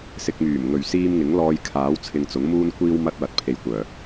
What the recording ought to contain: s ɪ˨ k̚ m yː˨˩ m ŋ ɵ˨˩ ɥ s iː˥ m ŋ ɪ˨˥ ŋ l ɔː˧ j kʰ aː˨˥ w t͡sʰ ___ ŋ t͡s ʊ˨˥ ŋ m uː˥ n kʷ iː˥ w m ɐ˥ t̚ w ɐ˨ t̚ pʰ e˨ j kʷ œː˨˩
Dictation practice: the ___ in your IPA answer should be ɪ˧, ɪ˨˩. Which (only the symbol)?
ɪ˧